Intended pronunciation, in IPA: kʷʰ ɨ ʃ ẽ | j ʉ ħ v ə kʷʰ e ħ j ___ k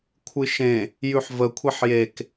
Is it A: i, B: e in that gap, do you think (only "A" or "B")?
B